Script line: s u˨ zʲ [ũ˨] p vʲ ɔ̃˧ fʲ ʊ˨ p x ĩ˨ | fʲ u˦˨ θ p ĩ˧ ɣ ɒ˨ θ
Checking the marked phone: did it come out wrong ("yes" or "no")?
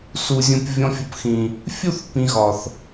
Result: no